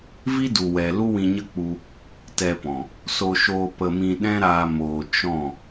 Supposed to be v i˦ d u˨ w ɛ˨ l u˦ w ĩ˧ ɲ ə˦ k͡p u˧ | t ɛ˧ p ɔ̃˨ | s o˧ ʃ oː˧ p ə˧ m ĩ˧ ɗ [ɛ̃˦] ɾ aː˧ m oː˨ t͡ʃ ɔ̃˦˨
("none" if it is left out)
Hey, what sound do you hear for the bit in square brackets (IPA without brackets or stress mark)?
ɛ̃˦